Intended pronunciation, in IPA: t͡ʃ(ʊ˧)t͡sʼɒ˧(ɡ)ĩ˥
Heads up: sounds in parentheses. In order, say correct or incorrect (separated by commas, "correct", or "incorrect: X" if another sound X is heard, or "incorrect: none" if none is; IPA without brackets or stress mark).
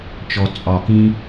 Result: incorrect: ɔ˧, incorrect: k